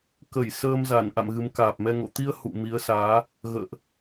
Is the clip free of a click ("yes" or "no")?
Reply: yes